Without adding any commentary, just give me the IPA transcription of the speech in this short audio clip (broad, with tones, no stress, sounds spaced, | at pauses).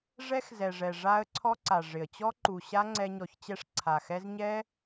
ʐ ɛ˦ x z ɛ˨ ʐ ɛ˨ ʐ a˧ ə̯ ǀʰ ɔ˦ ǀ a˨ ʐ ɪ˨ ə̯ t͡ɕ ɔ˦ ǃ u˨ ɕ a˦ ŋ͡ǀ ɛ˧ ɲ ɔ˨ ç t͡ɕ ɛ˧ ʂ ǀʰ a˨ x ɛ˦ z ɲ ɛ˦